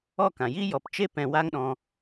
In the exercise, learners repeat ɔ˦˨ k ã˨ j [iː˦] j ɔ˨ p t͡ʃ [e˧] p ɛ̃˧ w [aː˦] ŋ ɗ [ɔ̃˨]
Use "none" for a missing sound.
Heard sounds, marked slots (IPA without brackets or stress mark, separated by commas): iː˦, e˦, a˦, ɔ̃˧